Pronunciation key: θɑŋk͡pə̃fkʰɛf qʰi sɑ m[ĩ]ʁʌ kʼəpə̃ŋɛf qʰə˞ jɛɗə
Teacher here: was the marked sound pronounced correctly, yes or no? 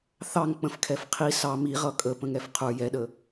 no